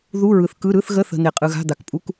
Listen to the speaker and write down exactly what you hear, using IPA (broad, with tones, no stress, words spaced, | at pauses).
ðu˧˥˧ɹɯ˨θkɯ˧˥˧ ɾɯ˧˥˧θɣə˧˥˧θə̤˨ n̪e˨qʼɯ˨ɣa̤˧˥˧ d̪a˨kpʼu˧˥˧k